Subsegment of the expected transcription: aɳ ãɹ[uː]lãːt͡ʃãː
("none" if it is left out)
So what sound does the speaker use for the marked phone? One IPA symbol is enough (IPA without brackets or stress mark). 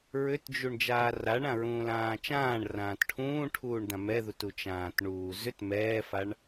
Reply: ũː